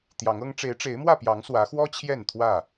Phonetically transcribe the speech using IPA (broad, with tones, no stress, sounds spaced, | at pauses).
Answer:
t̪ j ɑ˨˦ ŋ ɤ˦ ŋ ʈ͡ʂ e˨˦ ɪ̯ ʈ͡ʂ e˨˦ ɪ̯ m w ä˥˨ p j ɑ˨˦ ŋ s w ä˨˦ x w ɔ˦ t͡ɕʰ j ɛ˥˨ n t̪ʰ w ä˥˨